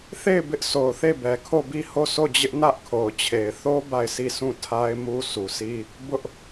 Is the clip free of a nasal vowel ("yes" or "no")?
no